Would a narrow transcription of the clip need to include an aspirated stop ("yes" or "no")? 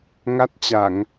no